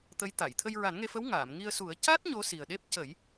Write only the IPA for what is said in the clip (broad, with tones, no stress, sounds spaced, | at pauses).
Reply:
t̪ ə˧˥ j t̪ a˨˩˨ j t̪ʰ ə˧ j ɹ a˨˩˦ n ŋ e˧ f ə˧˥ w ŋ aː˨˩˨ m ŋ i˧ ə̯ s u˨˩˦ ə̯ c a˦˥ t̚ ɲ o˧˥ s i˨˩ ə̯ ɗ e˦˥ p̚ c ə˨˩˦ j